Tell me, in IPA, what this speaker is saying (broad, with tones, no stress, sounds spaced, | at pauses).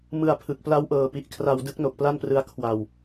m ɯ˧ a̯ pʰ ɯ˨˩ k̚ p l a˦˥ w ʔ ɤː˨˩ p i˨˩ ʔ kʰ r a˧ w d ɯ˥˩ k̚ n o˨˩ k̚ p l a˥˩ n p r ɯ˦˥ a̯ kʰ w a˧ w